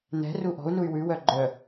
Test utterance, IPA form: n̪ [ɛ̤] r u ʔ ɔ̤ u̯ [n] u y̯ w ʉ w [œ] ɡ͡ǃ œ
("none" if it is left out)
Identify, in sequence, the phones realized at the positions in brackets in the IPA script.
ɛ̤, n, œ

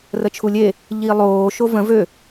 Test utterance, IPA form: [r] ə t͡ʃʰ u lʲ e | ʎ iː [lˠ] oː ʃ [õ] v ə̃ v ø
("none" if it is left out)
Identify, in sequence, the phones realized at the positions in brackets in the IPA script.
r, lˠ, o

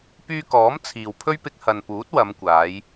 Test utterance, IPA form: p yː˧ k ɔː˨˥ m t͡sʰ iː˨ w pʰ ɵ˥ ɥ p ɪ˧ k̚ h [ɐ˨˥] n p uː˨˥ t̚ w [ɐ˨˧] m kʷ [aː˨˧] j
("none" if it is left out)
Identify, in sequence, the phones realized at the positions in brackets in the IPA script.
ɐ˨, ɐ˨˧, aː˨˧

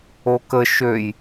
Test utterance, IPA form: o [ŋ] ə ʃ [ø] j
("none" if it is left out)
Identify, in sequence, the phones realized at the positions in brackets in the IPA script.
k, ø

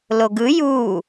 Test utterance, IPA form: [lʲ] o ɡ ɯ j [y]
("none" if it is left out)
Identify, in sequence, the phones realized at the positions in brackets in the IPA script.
l, u

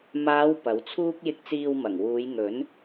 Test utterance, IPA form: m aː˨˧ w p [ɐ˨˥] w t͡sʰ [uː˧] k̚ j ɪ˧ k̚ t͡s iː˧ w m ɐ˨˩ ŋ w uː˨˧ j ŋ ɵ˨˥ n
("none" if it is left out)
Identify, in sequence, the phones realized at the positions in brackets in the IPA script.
ɐ˨˥, uː˥

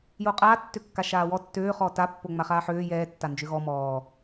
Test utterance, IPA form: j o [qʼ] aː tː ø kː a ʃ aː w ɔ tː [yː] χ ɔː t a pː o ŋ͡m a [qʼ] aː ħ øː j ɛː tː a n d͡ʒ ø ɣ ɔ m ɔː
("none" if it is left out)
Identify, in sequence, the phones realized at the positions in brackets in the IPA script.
qʼ, øː, χ

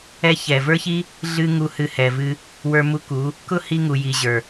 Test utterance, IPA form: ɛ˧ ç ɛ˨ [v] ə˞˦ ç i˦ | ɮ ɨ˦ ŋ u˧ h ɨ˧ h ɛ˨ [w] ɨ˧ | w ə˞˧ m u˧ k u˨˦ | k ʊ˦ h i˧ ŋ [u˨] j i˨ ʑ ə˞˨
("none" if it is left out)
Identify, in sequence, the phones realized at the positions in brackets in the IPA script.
v, v, u˨

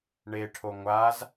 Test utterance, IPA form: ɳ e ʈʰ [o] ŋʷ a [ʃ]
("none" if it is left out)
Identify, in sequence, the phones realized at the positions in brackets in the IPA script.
o, z

